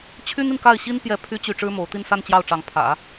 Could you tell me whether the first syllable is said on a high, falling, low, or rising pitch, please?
high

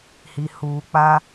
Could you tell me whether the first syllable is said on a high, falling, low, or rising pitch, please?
low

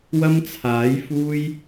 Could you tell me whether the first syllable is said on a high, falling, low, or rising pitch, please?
high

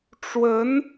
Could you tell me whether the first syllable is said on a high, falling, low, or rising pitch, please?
rising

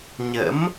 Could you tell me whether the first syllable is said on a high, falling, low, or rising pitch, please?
rising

